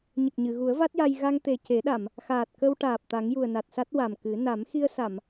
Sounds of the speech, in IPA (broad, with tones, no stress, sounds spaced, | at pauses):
ɲ ə˨˩ k̚ ɲ ɨ˨˩˨ ɣ u˨˩˦ ə̯ v a˦˥ t̚ j a˧ j ɣ a˧ ŋ t̪ e˨˩ c e˨˩˦ ɗ a˨˩˨ m | x aː˨˩ t̚ k ə˧ w ʈ aː˨˩ p̚ t̪ a˨˩˦ ŋ j u˨˩ ə̯ n a˨˩ t̚ s a˦˥ t̚ w a˨˩ m k ɨ˨˩˦ n a˨˩˦ m x i˧ ə̯ s a˨˩˨ m